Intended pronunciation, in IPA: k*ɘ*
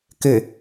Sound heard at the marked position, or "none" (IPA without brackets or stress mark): ɘ